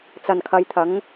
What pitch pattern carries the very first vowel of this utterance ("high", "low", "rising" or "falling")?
low